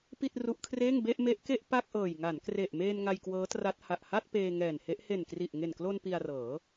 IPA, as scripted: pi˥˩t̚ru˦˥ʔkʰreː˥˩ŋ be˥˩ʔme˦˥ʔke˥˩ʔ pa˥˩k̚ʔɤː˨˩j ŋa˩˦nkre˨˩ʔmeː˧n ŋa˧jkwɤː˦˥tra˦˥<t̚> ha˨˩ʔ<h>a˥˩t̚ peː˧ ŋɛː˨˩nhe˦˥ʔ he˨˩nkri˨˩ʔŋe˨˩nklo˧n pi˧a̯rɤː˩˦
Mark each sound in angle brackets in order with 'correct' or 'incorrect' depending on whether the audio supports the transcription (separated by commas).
correct, correct